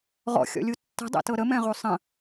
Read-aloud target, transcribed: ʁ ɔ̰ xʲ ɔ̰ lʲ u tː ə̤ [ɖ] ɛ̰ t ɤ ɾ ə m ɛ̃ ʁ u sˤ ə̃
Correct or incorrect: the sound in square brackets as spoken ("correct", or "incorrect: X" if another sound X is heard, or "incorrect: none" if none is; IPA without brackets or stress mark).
incorrect: dˤ